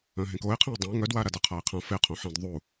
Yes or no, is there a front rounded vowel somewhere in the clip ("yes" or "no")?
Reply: yes